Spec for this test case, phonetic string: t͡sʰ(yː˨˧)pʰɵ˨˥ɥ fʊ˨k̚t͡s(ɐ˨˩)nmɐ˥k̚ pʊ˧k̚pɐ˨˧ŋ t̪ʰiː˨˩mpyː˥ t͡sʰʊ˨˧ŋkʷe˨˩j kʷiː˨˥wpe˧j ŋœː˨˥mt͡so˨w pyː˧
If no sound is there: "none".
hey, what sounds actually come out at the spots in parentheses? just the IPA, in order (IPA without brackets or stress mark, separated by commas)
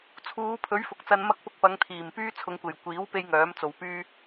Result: uː˨˧, ɐ˧